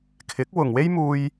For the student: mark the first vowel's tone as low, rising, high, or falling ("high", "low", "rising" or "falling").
rising